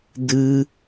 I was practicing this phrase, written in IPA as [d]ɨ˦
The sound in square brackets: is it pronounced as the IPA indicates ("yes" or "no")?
yes